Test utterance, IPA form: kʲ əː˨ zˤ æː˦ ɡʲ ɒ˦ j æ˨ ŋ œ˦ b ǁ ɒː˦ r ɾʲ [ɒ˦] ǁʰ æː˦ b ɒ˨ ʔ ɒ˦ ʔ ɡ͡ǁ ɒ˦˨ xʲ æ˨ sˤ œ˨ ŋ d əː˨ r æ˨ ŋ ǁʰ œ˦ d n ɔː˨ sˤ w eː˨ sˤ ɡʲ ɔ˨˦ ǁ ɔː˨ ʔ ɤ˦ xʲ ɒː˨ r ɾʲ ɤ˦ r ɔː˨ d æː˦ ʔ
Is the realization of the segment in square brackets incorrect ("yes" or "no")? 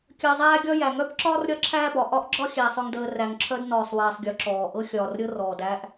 no